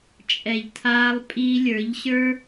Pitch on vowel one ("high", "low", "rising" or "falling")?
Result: low